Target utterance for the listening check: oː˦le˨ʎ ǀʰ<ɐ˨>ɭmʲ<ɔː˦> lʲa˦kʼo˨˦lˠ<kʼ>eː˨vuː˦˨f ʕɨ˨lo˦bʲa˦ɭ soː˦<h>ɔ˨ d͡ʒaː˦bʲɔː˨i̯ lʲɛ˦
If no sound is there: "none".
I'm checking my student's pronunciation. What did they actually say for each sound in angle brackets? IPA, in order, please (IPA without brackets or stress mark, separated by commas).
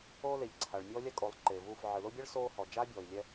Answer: a˨, ɔː˦, ǃ, h